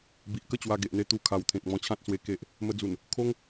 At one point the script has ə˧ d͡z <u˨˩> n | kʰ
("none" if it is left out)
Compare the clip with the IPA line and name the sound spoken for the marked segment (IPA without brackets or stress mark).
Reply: u˨˩